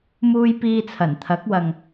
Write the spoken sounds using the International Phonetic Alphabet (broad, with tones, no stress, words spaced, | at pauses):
muː˧j piː˧t͡sʰɐ˨˩nt̪ʰɐ˨˥k̚wɐ˨ŋ